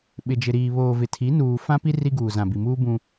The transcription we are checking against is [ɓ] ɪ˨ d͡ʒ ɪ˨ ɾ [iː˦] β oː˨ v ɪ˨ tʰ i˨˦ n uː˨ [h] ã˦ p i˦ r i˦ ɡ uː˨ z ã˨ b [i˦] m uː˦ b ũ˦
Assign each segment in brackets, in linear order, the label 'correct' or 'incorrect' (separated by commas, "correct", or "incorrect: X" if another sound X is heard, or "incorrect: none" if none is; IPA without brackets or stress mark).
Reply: correct, incorrect: iː˨, incorrect: f, incorrect: i˨